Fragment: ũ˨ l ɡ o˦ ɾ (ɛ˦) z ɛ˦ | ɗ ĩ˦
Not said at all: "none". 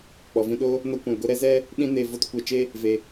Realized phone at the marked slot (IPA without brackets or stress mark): ɛ˦